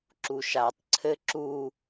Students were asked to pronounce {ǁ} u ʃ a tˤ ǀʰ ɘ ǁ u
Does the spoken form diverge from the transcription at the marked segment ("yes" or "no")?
no